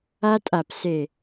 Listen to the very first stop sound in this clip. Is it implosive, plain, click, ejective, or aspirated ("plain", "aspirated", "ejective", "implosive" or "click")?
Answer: ejective